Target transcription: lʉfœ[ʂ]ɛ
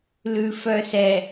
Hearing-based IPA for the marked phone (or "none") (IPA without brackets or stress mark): s